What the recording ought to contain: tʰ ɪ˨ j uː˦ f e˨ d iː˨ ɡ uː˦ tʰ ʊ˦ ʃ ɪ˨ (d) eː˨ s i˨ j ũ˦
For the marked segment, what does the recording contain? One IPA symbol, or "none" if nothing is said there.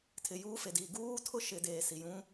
d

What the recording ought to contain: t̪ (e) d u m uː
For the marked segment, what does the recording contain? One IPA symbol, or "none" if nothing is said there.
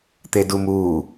e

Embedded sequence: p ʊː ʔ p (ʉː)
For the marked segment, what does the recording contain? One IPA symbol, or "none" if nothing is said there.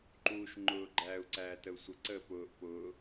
ʊː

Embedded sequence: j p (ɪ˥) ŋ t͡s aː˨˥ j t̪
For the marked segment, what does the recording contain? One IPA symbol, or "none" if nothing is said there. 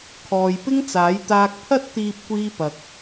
ɪ˥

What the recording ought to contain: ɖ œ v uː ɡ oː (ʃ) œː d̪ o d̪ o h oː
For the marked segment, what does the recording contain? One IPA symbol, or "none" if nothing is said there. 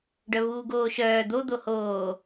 ʃ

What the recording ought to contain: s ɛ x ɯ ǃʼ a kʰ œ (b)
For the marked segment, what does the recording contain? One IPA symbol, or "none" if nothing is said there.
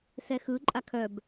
b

